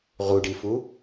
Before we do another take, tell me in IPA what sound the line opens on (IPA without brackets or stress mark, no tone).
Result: ʁ